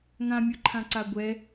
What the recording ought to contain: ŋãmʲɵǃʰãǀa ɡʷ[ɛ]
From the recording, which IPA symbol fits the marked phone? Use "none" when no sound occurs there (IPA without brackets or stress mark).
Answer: ɛ